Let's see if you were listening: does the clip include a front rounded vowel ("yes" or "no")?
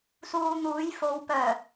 yes